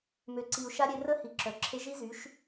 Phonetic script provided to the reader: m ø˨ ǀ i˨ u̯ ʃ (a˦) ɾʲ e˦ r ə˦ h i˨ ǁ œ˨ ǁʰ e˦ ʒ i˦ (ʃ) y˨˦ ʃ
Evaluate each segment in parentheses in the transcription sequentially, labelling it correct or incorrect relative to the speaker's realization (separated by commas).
correct, incorrect